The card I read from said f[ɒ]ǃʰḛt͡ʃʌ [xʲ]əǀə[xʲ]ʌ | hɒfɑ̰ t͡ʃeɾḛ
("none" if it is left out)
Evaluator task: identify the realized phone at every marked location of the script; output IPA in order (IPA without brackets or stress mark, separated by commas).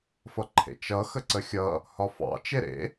ʌ, x, xʲ